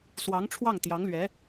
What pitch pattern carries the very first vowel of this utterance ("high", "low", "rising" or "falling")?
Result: rising